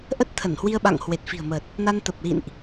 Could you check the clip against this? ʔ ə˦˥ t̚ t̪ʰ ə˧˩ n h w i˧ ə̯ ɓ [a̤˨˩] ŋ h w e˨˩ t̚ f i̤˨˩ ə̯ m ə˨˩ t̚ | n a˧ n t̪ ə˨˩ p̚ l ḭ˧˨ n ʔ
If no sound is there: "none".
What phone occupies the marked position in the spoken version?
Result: a̰˧˨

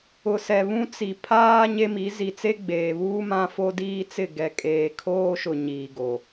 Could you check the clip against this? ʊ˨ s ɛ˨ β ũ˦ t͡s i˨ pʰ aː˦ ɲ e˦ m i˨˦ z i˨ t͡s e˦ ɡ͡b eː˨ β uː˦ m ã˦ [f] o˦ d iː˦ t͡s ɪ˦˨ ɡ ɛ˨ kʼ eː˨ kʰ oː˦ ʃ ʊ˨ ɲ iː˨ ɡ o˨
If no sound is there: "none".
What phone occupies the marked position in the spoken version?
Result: f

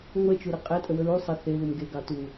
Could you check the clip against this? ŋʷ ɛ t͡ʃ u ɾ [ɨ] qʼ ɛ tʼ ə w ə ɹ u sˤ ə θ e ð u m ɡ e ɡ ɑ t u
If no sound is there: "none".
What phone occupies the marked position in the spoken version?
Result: ɨ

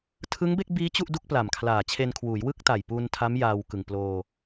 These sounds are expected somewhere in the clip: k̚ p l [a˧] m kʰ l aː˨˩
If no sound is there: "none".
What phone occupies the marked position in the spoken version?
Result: a˨˩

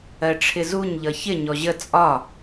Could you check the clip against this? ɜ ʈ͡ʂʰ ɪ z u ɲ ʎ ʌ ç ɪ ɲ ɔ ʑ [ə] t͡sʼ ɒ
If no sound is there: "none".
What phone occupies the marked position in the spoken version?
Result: ə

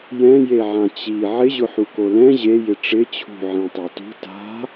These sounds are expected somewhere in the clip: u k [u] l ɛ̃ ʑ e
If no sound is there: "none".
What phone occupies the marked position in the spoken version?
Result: o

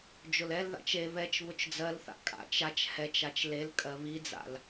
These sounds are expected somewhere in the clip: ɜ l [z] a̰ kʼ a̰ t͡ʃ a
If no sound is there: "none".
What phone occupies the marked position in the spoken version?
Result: θ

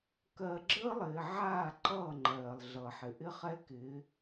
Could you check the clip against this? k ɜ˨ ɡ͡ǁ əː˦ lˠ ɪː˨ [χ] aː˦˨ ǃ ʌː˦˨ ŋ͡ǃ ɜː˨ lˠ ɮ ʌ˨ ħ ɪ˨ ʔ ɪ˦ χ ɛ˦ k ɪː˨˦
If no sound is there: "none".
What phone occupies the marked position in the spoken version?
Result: ʕ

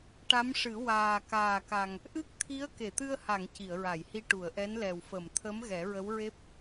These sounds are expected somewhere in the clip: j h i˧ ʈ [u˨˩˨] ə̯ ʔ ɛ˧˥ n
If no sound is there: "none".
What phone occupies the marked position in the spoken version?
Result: u˨˩˨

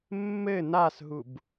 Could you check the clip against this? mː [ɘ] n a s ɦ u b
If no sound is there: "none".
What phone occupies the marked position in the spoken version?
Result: ɘ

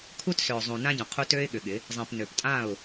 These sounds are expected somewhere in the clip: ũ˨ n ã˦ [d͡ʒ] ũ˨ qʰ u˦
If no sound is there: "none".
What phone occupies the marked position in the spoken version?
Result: ɟ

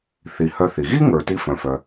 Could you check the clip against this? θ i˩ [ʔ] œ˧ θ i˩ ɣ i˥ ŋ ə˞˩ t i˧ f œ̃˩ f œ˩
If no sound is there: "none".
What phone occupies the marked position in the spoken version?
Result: h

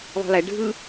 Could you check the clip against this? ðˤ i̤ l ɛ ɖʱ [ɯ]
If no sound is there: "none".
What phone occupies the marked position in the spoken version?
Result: ɯ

